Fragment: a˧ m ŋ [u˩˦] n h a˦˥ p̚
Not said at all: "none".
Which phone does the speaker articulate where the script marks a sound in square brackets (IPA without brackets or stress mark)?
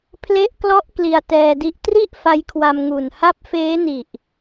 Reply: u˨˩